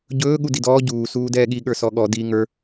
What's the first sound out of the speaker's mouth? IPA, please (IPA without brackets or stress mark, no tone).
ɟ